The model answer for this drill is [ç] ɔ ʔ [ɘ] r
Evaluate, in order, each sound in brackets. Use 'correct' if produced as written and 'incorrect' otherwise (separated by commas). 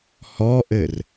incorrect, correct